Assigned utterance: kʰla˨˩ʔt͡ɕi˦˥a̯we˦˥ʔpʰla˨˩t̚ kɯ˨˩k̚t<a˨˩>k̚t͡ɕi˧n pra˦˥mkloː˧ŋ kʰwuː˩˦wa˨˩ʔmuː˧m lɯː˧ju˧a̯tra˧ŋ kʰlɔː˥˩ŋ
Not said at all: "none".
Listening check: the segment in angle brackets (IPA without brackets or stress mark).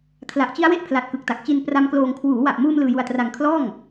a˨˩